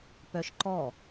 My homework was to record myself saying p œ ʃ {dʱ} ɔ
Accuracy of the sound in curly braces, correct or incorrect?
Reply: incorrect